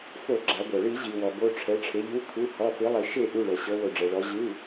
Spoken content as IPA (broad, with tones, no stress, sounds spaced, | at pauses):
f o˧˩˧ ɡ͡ǁ a˩˧ ɡʷ ɤ˩ ɭ i˧˩˧ ʑ i˩ w ɔ˩ b o˩˧˩ ʈ͡ʂʰ ɛ˩˧ ʈ͡ʂʰ e˩˧ ʎ u˩˧˩ kʰ u˩˧˩ h ɔ˩˧˩ f i˩˧ lˠ i˩ ʃ e˧˩˧ ʔ u˩˧˩ ɭ ɤ˩ ɕ ɤ˩˧ w o˩ ɖ͡ʐ ɛ˩ ɭ ɔ˩˧ ʑ ɯ˩˧˩